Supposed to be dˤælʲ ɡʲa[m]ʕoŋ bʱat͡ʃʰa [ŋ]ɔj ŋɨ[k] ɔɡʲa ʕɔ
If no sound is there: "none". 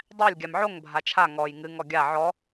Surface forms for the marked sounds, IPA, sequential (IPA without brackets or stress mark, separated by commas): m, ŋ, ŋ